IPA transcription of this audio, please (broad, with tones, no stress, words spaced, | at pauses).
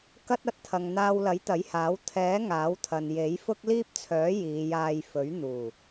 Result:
kɐ˥t̚ ɐ˨˥t̚t̪ʰɐ˨ŋn̪aː˧wlɐ˨˥j t̪ɐ˨˥jhaː˨˥w t̪ʰɛː˨˥ ŋaː˨˥wt̪ʰɐ˨n je˨˥jfʊ˥k̚ liː˥p̚t͡sʰœː˨˥ jiː˨˧jaː˧jfɵ˨˥ɥ n̪uː˨˩